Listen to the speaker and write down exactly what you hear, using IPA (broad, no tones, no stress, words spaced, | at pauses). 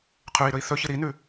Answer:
qʰʉi̯ɾɵi̯ θɵçɨ ɾinʉ